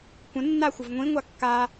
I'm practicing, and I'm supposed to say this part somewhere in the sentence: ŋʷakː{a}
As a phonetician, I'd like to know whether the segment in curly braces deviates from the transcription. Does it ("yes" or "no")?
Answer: no